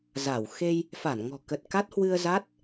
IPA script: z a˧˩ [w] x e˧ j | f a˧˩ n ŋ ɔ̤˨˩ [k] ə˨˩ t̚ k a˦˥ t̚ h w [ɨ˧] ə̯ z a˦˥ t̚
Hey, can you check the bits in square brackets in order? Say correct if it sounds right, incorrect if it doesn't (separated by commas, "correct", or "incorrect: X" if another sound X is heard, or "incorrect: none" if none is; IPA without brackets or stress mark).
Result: correct, correct, correct